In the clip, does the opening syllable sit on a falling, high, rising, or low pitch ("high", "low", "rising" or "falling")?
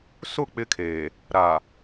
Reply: falling